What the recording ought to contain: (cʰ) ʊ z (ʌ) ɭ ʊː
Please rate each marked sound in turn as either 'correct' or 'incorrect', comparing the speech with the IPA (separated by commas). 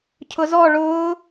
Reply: correct, incorrect